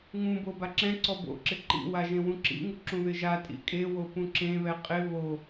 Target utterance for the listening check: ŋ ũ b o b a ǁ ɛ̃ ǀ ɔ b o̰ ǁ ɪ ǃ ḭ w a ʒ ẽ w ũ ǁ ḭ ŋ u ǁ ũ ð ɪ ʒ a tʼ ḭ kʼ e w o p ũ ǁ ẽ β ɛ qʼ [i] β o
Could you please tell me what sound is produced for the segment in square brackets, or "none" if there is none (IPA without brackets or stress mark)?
ɪ